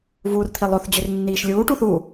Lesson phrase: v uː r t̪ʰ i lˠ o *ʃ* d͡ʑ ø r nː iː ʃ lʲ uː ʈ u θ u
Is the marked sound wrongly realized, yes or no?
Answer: yes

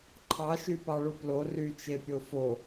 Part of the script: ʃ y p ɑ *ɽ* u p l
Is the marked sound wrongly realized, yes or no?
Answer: yes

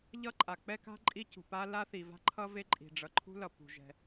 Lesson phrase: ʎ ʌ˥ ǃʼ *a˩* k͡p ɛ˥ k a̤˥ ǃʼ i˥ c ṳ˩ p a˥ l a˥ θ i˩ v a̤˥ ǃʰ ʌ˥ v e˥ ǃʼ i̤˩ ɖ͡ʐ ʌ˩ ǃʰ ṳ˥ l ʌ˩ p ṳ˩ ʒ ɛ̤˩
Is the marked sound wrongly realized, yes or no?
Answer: no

